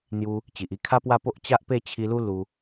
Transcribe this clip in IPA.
n̪ j u˧ | t͡ɕ i˨ ʔ i˥˧ kʰ a˦ p w a˥˧ p o˦ ʔ t͡ɕ a˦ ʔ p e˥˧ t͡ɕʰ i˧ l u˦ l u˧

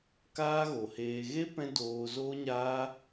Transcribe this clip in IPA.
k aː˦ ɣ o˨ h eː˧ ɣ e˦ p ɛ̃˦ d oː˧ z oː˦ ɲ aː˦

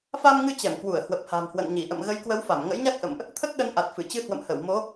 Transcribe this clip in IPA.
f a˧ m ŋ ɨ˧ t͡ɕ ɛ˧˩ m k w u˧˩ ə̯ h w ə˨˩ p̚ h a̤˨˩ m h w ə̰˧˨ n ɲ i˧˩ ʔ ə̰˧˨ m ɣ ə˨˦ j k w ə˨˦ w f a˧˩ m ŋ ə̰˧˥ j ɲ a˦˥ k̚ ʔ ə̰˧˨ m ʔ | t̪ʰ ə˦˥ t̚ ɗ ə˨˦ n ʔ a˨˩ t̚ f ɨ˧˩ t͡ɕ ɨ˧ h w ə̰˧˨ m h ə˧˩ w m o˨˦

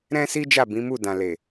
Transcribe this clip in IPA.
ɾ ɛ̃˦ s i˦ d͡ʒ a˦˨ b ĩ˨˦ m u˦˨ d ã˨ l e˨

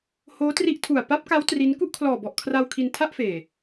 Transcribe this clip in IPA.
h oː˦˥ t r i˦˥ ʔ tʰ u˨˩ a̯ p a˦˥ p̚ k a˦˥ w t r i˦˥ n k u˥˩ ʔ kʰ l ɔː˨˩ b ɔ˨˩ ʔ kʰ r a˧ w kʰ i˧ n tʰ a˥˩ ʔ f eː˨˩

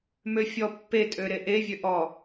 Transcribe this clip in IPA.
m ø fʲ ɔ pː e tʼ ø ɾ e ʔ e vʲ ø ʔ ɔ

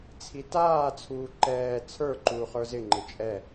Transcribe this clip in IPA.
t͡sʰ i t aː t͡sʰ uː ǃ ɛː t͡sʰ ə˞ ǃ uː χ ə˞ z ɪ ŋ͡ǃ ɪ t͡ʃʼ ɛ

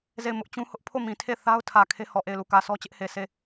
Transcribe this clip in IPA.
z e˦˨ ɪ̯ m ʊ˦ ʔ t͡ɕ ũ˦ h ʊ˦ ʔ pʰ o˦˨ m ĩ˨ tʰ e˦˨ θ a˦ ʊ̯ tʰ ä˨ kʰ e˦ h ɔ˨ ʔ e˦˨ ɪ̯ l u˦˨ k ä˨ s ɔ˦ t͡ɕ ɪ˦ ʔ h e˨ s e˦˨

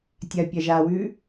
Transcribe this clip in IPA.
tʲ ɐ pʲ ɐ ʒ a w ʉ

